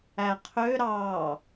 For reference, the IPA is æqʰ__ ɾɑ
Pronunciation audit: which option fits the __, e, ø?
ø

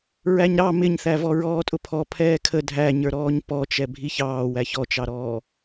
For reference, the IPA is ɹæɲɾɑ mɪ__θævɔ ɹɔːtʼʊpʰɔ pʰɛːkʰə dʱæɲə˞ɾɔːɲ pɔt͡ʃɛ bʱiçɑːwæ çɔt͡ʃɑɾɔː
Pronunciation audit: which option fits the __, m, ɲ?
ɲ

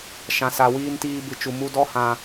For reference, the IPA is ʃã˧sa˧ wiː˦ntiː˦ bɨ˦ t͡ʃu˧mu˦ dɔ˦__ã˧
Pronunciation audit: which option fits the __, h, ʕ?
h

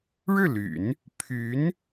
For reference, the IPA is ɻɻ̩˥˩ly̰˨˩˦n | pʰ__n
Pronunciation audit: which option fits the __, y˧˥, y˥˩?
y˧˥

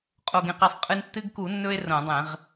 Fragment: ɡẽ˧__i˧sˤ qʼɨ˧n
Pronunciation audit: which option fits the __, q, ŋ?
q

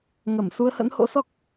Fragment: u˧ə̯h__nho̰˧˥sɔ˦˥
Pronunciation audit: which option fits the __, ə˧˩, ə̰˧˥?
ə̰˧˥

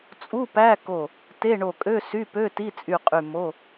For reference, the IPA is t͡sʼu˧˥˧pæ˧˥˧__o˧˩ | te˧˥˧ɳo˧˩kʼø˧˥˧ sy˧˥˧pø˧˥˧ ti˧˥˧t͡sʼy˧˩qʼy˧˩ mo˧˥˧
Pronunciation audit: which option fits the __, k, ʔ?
k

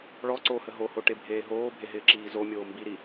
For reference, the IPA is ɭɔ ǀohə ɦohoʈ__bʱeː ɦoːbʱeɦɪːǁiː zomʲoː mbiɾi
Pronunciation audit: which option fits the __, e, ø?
e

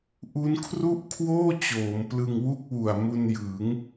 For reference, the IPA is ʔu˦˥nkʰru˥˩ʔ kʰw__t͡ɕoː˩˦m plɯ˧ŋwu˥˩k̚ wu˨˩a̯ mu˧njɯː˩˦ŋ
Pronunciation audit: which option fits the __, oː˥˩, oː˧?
oː˥˩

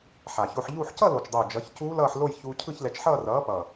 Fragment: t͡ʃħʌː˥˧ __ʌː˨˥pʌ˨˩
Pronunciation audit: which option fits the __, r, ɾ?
r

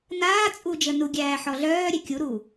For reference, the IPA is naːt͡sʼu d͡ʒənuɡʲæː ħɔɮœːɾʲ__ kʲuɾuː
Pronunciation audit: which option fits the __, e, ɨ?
e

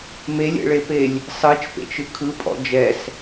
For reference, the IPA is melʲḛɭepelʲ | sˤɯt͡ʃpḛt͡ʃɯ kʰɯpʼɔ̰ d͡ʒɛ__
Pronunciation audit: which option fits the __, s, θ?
s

